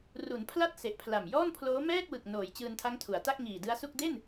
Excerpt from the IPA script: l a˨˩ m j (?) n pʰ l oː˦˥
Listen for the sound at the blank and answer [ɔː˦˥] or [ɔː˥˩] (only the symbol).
ɔː˥˩